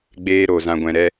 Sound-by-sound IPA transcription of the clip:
ɡ͡b eː˧ ɾ o˨ z ã˨ ɡʷ ɛ̃˨ ɾ ɛ˧

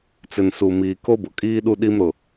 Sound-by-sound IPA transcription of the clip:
t͡s ɪ˨ n s u˨ m iː˨ k o˦ b ʊ˨ kʼ iː˦ ɗ u˦ ɗ i˦ m ɾ ʊ˨

